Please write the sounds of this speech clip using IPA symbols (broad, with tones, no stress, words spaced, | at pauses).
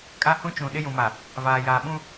kʼa˦hũ˦t͡ʃũ˨ ɗɪ˦jũ˨ma˨ | vaː˨jaː˨ ɓũ˦